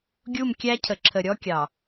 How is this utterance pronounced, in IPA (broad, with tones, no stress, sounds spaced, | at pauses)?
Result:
ɡʲ u˦˨ m kʲ æ˦ cʰ ə˨ ǁʰ ə˨ ɾʲ ɔ˦ kʲ ɑ˨